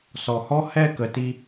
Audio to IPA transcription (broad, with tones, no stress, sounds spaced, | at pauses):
s ɔ˨ h ɔ˦ h ɛ˦˨ k ə˨ t i˧